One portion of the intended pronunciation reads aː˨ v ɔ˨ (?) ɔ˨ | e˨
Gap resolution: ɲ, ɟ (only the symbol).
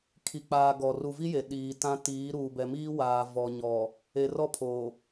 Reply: ɲ